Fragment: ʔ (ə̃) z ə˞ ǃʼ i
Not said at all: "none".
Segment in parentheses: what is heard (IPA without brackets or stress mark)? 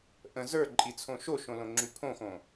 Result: ə̃